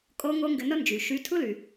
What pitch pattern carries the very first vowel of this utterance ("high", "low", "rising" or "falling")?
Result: high